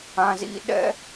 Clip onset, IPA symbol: ã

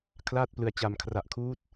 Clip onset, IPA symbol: kʰ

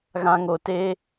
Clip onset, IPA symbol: ɣ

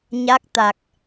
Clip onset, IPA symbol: ɲ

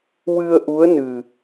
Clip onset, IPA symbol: w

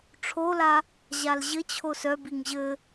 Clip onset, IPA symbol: ʈ͡ʂʰ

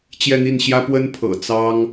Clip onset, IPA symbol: t͡ɕ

